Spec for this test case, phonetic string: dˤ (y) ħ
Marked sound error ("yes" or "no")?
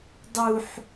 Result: yes